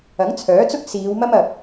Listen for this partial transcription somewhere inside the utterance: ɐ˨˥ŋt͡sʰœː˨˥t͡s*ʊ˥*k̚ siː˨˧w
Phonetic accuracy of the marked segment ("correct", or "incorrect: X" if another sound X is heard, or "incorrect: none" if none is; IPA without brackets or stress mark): correct